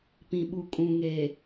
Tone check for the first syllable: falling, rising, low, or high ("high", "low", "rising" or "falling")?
low